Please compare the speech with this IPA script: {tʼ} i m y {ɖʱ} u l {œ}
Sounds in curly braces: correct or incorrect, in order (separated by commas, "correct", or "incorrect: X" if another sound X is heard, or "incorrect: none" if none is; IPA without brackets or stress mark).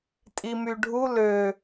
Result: correct, correct, incorrect: ø